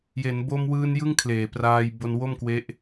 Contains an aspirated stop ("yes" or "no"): yes